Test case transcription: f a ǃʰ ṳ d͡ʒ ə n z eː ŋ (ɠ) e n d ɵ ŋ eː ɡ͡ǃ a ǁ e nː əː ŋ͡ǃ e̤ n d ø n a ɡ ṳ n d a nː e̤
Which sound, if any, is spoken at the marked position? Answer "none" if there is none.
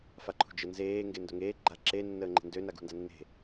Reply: ɡ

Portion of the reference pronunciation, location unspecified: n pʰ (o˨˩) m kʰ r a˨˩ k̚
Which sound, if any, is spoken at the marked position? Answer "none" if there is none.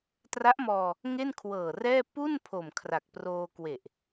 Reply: o˨˩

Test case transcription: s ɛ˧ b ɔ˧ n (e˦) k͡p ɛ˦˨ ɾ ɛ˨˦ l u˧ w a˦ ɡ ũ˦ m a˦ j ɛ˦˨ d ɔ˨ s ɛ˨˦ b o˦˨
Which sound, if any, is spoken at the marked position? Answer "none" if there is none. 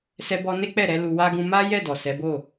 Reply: e˦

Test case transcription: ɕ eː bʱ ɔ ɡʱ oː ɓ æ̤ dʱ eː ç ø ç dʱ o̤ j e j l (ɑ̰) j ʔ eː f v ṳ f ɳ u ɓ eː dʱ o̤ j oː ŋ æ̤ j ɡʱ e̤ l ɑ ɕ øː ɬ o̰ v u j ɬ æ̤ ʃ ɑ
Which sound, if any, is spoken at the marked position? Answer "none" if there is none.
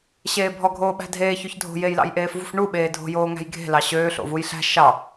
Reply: ɑ̰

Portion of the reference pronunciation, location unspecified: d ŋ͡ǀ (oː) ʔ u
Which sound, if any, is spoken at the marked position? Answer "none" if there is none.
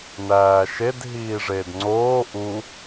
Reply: oː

